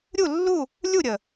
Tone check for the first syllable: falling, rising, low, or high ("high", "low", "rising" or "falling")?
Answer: falling